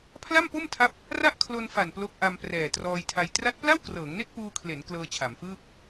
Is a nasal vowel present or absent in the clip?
absent